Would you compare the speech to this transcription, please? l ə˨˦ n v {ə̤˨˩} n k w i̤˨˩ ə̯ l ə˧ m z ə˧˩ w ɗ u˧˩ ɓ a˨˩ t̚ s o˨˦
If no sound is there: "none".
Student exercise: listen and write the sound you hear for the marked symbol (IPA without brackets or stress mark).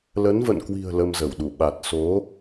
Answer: ə̰˧˨